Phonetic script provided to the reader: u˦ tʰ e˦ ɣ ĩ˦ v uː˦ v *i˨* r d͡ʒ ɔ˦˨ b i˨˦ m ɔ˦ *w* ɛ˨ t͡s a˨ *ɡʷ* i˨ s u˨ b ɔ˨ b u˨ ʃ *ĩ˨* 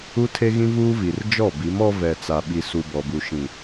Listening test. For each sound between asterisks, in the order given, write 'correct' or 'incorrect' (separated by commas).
correct, incorrect, incorrect, correct